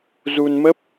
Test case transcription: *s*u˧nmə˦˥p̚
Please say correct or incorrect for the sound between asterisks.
incorrect